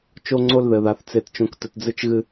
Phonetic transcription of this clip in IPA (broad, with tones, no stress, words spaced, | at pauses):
t͡ʃo˦ŋ͡ǀo˦lðɘ˨ða˨θ t͡se˦tt͡ʃõ˦k tɘ˨td͡zɨ˦t͡ʃɣɨ˦